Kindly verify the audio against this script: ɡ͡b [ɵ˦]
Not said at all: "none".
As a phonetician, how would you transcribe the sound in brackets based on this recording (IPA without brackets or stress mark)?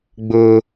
ʊ˦